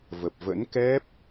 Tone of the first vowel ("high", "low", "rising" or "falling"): low